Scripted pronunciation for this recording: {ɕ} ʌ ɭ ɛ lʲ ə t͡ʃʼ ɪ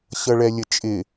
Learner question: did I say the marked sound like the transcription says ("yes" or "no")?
yes